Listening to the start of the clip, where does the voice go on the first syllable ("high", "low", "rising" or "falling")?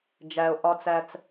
low